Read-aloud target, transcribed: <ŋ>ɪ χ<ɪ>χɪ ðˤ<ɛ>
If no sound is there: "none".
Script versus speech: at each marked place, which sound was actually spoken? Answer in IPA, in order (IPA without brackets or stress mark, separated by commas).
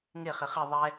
ŋ, ɪ, ɛ